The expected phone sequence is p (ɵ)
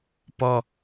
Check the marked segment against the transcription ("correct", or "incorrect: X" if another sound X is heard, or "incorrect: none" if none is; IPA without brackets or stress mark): incorrect: ɔ